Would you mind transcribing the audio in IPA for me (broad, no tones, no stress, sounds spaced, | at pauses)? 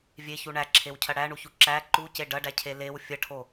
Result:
vʲ e ç u ɳ æ ǁʰ e w cʰ ɐ ɽ æ ɳ u ç u ǁ æ ǃ u c e ɖ ɐ ɖ æ cʰ e l e w fʲ ɐ ʈʰ o